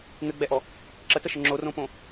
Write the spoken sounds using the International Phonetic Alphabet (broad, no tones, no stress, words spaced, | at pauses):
ŋɘɡ͡bɛʔɔ | ǁətəʃə ŋ͡ǁorõpõ